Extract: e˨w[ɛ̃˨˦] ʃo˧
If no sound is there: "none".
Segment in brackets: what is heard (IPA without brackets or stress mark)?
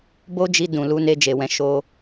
ɛ̃˨˦